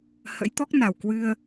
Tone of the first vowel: rising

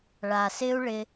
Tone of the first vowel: low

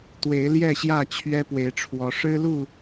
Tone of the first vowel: rising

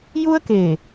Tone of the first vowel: high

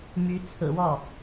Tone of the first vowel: rising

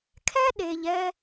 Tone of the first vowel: high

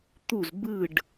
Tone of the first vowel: falling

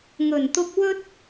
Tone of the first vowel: low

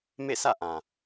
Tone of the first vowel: falling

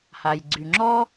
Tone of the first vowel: low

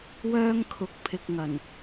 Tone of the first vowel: high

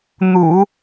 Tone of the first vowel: low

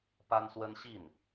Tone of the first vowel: high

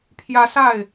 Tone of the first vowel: high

